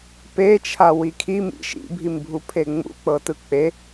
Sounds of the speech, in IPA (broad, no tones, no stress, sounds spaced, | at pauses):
p e t͡ʃʰ a w i kʰ i m ḭ ʃ ḭ bʱ i m bʱ u pʰ e ŋ͡m ṵ k͡p ɤ t ɯ k͡p e